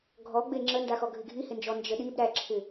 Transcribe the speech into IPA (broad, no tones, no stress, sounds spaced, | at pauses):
ɡʱ ɔ ɡ͡b e ŋ͡ǁ ə n d a x ɔ ɡʱ ɪ ɡʱ i h ɪ n d͡ʒ ɔ n d͡ʒ ə ɗ i b ɾ æ ǁʰ ɪ